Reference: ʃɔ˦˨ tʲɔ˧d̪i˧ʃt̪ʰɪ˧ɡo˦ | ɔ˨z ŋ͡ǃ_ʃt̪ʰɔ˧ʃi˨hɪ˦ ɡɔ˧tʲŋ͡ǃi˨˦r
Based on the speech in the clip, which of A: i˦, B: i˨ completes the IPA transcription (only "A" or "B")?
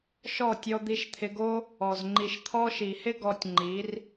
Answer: B